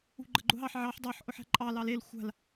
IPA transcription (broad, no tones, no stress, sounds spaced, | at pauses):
ṳ ɡ͡ǃ ə ɡ͡ǃ ʊ ɦ ɑ ħ ʕ ɑ ħ dˤ ɑ ħ ʔ ʊ ħ æ̤ ǃʼ ɑ l ɑ l e l xʷ a̤ l